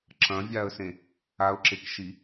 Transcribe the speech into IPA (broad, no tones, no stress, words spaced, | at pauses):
ǁɐ̃vʲaə̯sẽ | aʊ̯ǁekʃi